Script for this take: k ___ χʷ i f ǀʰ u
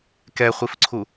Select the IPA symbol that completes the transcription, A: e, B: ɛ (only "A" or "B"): B